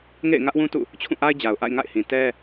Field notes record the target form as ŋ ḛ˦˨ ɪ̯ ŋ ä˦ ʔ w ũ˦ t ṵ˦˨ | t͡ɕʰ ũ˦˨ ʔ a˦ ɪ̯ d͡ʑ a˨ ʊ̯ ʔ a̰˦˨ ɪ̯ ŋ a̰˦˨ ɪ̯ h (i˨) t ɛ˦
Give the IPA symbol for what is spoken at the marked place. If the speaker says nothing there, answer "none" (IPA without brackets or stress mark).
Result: ĩ˨